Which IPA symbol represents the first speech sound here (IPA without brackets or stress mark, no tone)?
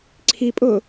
ǀʰ